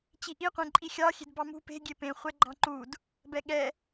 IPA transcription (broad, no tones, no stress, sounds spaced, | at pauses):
t͡ɕ i ʔ i qʷ ẽ ǃʼ i xʲ ɑ xʲ e̤ d b ɑ m ṳ p e̤ ɡʲ e p ẽ χʷ ɛ ɡ͡ǃ ɑ̃ ǃ u d | b ɛ ɠ ɛ